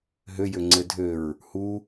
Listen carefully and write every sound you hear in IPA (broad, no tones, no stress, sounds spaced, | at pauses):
ɦ ø j ø ŋ͡ǀ ɘ dʱ ø ɹ | h u